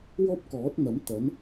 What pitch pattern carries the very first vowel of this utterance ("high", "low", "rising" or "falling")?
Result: high